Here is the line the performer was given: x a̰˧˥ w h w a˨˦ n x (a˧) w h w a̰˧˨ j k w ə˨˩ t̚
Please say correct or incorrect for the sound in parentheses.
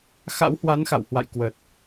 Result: incorrect: a̰˧˨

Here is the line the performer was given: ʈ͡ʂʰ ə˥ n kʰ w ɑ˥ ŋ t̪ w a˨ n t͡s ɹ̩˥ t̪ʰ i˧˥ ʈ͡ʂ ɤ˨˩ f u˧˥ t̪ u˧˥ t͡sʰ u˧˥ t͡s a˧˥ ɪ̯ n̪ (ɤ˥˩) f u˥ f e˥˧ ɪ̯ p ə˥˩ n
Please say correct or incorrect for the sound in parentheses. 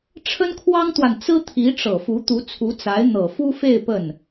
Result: incorrect: ɤ˨˩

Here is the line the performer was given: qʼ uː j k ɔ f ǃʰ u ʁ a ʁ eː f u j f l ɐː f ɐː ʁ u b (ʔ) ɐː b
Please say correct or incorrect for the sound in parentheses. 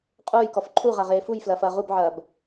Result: incorrect: ʕ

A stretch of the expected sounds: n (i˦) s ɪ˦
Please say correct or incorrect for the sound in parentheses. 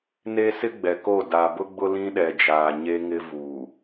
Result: incorrect: e˦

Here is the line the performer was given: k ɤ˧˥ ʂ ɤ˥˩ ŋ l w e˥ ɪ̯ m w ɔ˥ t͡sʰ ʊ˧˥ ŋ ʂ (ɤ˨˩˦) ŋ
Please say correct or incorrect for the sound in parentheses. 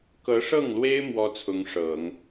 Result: correct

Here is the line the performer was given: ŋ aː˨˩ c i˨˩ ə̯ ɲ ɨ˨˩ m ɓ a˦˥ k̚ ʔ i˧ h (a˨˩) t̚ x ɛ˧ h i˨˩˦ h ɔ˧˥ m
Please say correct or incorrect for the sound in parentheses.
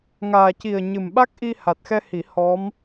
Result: correct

